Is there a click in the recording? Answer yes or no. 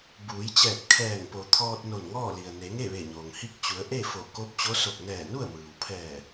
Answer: no